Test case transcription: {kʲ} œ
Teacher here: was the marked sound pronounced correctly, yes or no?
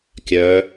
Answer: yes